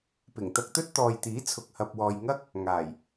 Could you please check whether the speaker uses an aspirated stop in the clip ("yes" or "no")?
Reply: yes